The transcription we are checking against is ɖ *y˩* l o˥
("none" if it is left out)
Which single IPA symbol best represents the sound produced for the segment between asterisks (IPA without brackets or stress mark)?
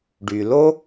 y˩